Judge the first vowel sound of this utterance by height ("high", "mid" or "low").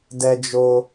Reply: mid